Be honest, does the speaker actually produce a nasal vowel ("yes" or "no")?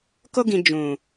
yes